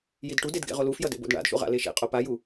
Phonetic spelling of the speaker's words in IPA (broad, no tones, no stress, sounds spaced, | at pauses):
j i d ʈ u d e d ɡ ḛ ʁ o l u f j ʌ d ḛ b o̰ d ɳ a̰ d ʃ ṵ ʁ a̰ l e ʃ ḛ qʼ o p a j u